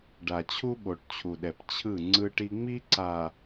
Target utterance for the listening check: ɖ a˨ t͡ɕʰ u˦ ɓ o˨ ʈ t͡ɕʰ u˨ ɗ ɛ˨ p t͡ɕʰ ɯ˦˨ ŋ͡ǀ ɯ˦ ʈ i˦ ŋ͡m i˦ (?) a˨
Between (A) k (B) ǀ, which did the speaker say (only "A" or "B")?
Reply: B